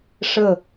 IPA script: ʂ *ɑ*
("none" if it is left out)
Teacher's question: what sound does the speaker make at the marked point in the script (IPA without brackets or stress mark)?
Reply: ə